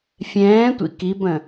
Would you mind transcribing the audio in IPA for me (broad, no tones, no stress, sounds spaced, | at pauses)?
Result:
fʲ ɛ̃ː tʷ ḭ k i b ə̃